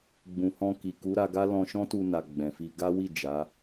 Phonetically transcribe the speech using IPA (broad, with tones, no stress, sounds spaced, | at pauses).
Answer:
ɡ͡b ũ˨ h ɔ̃˧ k i˨ k u˨˦ ɾ a˧ ɡ a˦ l ɔ̃˧ ʃ ɔ̃˦ t u˧ n a˨ ɡ͡b ɛ̃˨ f i˧ ɡ a˦ w i˦˨ d͡ʒ a˨˦